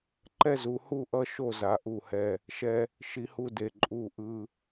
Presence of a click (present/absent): present